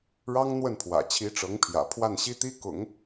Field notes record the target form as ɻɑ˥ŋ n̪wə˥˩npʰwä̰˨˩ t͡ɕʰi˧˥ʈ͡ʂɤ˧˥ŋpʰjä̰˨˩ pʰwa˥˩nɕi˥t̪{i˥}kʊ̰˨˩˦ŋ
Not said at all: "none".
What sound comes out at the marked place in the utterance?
i˥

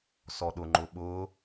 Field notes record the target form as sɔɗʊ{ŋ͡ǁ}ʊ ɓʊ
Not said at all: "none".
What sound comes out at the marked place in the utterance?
ŋ͡ǃ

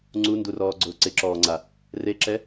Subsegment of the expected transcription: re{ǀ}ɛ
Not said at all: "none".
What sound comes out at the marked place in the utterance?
ǁ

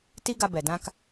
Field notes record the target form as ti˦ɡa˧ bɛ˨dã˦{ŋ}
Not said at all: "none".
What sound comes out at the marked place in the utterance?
k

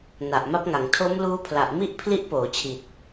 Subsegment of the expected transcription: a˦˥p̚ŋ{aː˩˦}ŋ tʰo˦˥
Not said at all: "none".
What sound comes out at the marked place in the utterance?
a˩˦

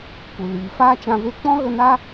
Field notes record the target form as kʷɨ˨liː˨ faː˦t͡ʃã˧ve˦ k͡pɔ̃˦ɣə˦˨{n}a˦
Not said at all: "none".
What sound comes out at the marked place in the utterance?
n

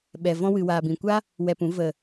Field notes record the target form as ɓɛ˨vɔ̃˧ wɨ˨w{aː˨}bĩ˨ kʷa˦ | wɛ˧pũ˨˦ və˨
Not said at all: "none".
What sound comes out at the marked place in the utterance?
aː˨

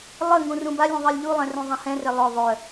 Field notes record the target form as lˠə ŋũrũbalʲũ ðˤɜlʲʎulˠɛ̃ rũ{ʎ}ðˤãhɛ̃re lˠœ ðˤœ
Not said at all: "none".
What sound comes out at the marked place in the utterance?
none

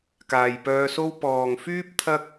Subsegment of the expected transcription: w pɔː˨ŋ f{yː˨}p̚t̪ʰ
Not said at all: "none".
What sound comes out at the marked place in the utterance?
yː˥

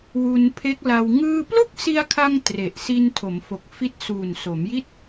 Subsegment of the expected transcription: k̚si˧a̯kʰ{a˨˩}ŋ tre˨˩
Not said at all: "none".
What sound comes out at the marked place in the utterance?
a˧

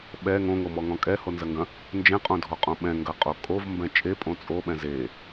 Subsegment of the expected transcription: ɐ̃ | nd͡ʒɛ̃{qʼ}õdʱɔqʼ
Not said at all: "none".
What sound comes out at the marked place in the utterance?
qʼ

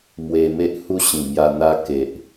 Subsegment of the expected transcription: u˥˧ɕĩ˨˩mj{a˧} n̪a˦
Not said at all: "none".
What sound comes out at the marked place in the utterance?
a˧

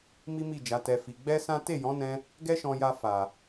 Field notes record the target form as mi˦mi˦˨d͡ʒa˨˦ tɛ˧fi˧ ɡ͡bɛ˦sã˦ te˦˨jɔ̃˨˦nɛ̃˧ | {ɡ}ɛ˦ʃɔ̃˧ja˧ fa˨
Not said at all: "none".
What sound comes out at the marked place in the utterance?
ɡ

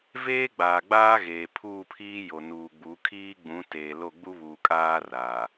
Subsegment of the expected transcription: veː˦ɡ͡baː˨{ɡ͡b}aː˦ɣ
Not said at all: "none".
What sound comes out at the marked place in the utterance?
ɡ͡b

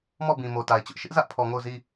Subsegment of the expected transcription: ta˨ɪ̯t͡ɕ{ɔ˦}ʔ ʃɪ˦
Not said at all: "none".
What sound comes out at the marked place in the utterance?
ʊ˦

